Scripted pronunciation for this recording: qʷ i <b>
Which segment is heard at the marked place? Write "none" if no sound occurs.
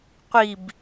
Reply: b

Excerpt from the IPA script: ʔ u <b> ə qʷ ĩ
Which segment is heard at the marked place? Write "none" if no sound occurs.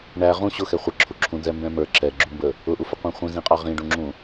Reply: f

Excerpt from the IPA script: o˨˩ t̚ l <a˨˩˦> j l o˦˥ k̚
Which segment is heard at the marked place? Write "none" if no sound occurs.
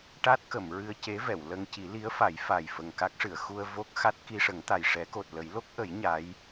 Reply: ə˨˩˦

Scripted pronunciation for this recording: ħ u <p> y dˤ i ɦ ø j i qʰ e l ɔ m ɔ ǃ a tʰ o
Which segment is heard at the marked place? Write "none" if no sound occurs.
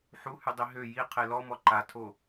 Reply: h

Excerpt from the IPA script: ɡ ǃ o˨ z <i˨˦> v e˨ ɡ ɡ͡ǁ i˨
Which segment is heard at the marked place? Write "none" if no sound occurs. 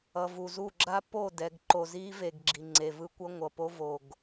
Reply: i˦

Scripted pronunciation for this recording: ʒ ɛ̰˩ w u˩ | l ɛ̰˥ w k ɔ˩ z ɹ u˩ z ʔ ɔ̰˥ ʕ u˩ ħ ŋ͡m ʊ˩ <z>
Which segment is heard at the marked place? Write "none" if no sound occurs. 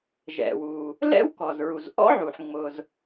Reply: z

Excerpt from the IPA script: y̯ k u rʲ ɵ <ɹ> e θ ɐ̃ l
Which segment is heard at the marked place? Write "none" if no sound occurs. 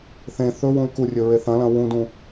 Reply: ɹ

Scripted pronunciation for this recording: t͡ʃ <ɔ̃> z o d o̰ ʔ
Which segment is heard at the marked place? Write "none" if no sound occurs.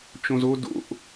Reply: õ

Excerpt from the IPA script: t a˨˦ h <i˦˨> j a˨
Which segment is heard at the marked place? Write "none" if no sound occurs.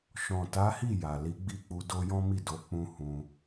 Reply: i˦˨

